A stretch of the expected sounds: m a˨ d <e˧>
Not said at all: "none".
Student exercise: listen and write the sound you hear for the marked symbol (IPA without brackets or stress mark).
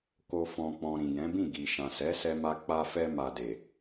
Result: e˨